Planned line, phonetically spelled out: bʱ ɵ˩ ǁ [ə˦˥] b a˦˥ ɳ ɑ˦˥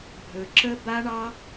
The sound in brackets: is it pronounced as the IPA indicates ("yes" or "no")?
yes